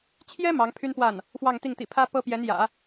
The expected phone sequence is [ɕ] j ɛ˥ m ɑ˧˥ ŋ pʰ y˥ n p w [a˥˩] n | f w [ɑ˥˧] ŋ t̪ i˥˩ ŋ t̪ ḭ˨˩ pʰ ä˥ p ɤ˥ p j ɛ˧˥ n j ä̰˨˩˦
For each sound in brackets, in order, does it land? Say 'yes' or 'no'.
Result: no, yes, yes

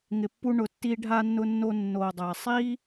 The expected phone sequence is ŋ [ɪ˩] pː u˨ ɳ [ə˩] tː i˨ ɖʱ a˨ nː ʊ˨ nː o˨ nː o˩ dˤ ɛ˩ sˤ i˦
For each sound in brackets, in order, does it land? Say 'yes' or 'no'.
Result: yes, no

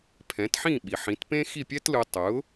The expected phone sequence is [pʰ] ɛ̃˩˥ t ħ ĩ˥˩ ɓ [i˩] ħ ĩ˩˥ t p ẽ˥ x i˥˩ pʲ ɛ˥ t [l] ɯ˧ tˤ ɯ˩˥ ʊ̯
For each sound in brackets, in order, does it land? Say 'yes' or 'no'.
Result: yes, yes, yes

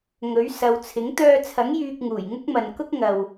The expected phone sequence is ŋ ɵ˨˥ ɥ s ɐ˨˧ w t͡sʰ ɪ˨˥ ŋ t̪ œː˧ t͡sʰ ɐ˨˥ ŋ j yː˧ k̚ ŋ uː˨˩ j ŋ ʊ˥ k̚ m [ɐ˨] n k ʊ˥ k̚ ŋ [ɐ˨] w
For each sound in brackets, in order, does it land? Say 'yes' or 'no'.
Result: yes, yes

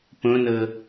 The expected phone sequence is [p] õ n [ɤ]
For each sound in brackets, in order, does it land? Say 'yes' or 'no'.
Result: yes, yes

